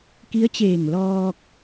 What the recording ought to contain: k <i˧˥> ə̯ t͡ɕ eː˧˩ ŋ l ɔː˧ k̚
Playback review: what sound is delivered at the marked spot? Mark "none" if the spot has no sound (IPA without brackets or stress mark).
i˧˥